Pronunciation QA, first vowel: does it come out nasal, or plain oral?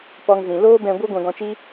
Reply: oral